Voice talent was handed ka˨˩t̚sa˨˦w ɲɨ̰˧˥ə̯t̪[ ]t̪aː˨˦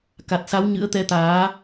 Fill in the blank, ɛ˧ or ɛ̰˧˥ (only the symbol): ɛ˧